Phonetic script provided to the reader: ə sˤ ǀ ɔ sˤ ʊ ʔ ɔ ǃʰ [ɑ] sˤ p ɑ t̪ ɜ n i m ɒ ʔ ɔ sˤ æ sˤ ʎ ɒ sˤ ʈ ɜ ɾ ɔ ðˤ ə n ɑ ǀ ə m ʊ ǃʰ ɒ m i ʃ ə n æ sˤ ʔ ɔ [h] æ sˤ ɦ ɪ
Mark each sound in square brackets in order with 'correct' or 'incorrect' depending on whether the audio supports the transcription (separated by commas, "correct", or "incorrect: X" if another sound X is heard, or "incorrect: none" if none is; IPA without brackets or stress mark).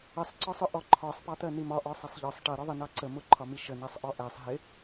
incorrect: ɒ, incorrect: ʔ